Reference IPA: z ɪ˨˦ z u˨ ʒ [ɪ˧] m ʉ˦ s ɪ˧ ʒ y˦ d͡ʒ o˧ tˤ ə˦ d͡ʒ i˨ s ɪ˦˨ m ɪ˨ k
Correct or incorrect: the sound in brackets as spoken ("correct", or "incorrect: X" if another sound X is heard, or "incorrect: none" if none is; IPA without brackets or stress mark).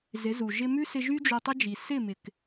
correct